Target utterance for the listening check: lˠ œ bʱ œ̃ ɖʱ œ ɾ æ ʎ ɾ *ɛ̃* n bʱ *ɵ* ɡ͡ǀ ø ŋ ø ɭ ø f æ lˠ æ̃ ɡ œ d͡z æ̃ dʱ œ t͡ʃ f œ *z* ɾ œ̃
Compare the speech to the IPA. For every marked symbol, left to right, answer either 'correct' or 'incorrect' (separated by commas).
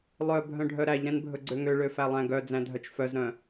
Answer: correct, correct, correct